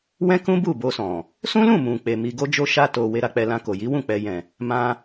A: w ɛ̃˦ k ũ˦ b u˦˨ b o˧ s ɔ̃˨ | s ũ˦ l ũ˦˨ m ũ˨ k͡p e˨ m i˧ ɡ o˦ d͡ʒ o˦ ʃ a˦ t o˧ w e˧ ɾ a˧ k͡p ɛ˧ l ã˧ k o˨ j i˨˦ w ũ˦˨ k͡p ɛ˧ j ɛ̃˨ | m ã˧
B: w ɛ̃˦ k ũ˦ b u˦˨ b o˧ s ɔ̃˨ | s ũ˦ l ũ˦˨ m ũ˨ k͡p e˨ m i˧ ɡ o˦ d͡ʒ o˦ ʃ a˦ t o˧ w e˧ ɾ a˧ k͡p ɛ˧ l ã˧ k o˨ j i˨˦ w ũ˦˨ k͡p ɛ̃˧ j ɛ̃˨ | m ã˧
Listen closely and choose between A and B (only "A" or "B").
A